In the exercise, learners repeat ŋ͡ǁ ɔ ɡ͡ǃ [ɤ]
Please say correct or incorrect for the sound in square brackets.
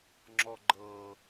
correct